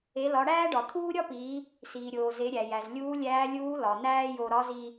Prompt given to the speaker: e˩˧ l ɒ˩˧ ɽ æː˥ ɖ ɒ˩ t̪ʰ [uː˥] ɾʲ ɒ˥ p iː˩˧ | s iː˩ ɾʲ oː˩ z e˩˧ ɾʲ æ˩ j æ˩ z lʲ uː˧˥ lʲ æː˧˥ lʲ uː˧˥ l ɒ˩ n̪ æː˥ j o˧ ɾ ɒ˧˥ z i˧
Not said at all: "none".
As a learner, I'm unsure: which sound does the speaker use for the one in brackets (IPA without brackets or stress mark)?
uː˥